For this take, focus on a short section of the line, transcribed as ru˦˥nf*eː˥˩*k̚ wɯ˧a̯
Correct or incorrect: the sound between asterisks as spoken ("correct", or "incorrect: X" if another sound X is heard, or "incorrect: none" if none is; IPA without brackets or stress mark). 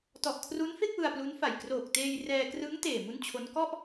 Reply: incorrect: e˥˩